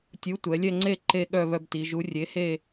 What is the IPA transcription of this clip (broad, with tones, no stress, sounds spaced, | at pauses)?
tʲ u˨˥ tʷ ɛ˩˧ lʲ ɛ˥˧ ŋ͡ǀ e˥˧ ǃ e˥˧ ɠ œ˥˧ β œ˥˧ b t i˩˧ ʒ u˨˥ rʲ e˨˥ h e˥˧